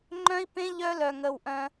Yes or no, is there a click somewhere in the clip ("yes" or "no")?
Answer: yes